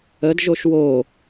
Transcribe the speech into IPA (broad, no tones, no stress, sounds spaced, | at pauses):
ə d ʒ o ʃ w o